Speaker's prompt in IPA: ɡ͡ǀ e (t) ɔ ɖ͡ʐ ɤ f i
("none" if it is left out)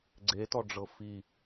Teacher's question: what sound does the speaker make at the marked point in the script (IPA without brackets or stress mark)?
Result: t